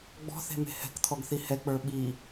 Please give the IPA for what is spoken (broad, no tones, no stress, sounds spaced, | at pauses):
ɡ͡b ɔ̤ θ e̤ m e̤ h ɛ̤ k t̪ʰ ɔ ɡ θ i h ɛ k͡p ə˞ ɓ i